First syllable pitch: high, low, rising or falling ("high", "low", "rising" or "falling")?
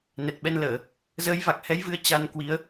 low